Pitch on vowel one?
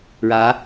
rising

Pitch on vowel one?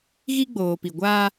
high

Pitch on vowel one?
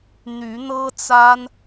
rising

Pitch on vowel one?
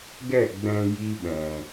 falling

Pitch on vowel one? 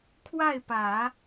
falling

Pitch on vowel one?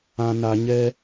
low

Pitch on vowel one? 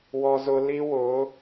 high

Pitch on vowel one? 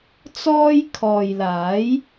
high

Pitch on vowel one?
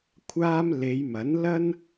high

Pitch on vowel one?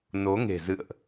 rising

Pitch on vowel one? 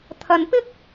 low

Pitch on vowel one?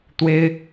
high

